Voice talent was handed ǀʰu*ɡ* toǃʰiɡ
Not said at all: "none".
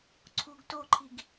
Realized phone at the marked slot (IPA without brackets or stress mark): ɡ